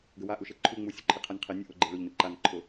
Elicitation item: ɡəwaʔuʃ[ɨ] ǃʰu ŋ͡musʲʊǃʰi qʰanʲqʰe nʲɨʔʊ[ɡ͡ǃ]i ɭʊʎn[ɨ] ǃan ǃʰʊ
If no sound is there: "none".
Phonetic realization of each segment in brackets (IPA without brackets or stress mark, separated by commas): e, ɡ͡ǃ, ɨ